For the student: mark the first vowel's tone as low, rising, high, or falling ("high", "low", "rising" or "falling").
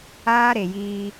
high